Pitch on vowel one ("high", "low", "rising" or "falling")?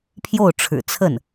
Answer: falling